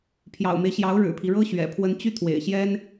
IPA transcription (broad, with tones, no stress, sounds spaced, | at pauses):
pʰ j ɑ̰˨˩ ʊ̯ m e˦ ɪ̯ ɕ j ɑ˧˥ ʊ̯ ɻ ɻ̩˨˩ pʰ i˦ ɻ ɤ˥ ɕ ɥ ɛ̰˨˩ pʰ w ə˧˥ n t͡ɕ y˥˩ t̪ʰ w ḛ˨˩ ɪ̯ ɕ j ɛ˥ n